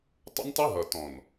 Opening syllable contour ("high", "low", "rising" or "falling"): high